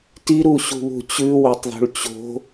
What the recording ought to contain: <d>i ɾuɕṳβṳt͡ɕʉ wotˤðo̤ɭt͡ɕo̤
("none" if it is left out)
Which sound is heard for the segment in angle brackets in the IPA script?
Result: t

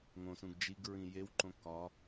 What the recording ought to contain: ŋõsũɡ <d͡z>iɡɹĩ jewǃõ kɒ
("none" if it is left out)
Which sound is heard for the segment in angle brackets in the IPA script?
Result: d͡ʒ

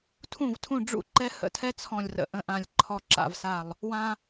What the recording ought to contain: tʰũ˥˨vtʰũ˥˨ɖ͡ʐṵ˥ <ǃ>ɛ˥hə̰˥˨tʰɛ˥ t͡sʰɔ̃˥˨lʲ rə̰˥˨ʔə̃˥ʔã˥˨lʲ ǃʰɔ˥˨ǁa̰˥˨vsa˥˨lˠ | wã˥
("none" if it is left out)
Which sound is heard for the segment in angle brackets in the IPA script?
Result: ǃ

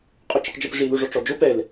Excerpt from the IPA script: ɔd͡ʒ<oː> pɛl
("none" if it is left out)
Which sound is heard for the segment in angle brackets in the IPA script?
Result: o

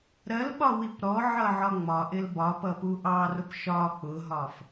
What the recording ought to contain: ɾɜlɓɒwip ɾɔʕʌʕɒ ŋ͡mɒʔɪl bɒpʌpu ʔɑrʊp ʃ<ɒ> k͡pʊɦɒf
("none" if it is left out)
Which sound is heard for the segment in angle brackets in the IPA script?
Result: ɒ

